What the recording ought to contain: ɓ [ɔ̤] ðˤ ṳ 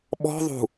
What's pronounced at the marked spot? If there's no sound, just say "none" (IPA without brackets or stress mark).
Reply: ɔ̤